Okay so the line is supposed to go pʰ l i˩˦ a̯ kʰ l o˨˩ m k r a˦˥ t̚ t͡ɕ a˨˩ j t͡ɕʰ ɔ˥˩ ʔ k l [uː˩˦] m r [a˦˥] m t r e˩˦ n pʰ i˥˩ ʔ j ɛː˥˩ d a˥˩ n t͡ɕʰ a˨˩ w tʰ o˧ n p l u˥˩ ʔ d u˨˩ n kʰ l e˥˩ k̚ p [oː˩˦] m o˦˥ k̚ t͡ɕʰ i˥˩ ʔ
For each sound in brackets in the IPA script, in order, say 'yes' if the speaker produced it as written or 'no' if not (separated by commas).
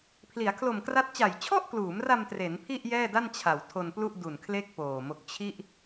yes, no, no